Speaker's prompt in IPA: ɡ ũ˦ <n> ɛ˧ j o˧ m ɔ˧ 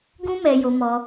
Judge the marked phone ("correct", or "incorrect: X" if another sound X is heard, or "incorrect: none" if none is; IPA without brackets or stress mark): incorrect: m